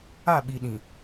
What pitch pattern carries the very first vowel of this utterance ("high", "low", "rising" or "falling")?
falling